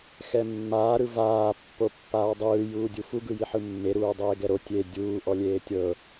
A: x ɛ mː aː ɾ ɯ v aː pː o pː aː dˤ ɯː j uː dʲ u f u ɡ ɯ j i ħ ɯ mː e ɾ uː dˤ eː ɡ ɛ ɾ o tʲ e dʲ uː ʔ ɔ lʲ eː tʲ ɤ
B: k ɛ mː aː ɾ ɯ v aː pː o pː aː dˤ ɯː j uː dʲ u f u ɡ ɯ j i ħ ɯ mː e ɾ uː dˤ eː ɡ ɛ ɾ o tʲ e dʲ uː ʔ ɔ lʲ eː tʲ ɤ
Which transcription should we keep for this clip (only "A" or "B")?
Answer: A